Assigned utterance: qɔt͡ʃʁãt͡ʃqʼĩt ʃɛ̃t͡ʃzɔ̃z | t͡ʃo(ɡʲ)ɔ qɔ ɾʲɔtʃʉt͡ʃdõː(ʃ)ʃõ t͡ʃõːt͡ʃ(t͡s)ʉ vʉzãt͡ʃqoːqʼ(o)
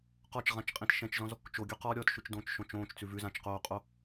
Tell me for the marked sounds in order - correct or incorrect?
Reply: correct, incorrect: t͡ʃ, correct, correct

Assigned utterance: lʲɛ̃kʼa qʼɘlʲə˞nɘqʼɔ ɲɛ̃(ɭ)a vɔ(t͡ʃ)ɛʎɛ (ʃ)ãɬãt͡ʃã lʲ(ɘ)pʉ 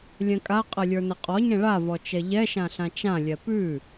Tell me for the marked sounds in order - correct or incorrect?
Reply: correct, correct, correct, incorrect: ɛ

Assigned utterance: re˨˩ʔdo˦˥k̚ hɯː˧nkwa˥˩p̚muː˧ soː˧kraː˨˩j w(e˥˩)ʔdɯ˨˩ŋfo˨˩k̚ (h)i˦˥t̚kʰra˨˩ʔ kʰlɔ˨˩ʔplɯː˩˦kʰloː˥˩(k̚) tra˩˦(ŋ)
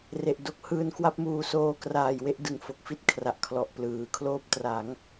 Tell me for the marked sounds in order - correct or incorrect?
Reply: incorrect: e˦˥, incorrect: f, incorrect: p̚, correct

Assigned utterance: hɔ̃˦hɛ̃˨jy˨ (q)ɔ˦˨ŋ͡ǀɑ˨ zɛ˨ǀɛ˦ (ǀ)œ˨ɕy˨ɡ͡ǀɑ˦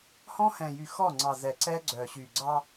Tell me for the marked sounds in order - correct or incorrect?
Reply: incorrect: x, incorrect: ɡ͡ǀ

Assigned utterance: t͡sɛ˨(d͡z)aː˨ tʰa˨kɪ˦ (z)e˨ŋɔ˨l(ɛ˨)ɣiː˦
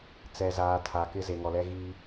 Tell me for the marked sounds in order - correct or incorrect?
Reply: incorrect: z, correct, incorrect: ɛ˦

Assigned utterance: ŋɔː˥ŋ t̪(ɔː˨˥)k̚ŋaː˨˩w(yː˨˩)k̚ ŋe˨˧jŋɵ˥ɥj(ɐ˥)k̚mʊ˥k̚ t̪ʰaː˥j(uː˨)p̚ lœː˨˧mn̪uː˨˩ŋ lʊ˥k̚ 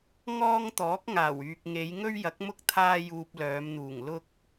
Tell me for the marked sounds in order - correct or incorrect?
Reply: correct, incorrect: yː˨, incorrect: ɐ˨˥, incorrect: uː˧

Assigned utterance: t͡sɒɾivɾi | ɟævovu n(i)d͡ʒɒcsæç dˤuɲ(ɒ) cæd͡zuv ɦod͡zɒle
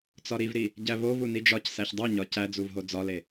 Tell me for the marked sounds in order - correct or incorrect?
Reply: correct, correct

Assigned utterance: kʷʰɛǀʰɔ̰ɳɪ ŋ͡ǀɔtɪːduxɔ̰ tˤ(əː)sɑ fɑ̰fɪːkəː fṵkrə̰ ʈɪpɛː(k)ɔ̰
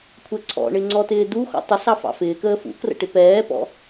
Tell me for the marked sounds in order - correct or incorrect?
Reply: incorrect: ə, incorrect: p

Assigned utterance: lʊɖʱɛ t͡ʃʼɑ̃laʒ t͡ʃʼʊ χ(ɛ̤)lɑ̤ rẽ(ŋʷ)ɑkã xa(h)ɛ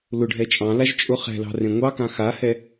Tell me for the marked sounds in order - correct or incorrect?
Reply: correct, correct, correct

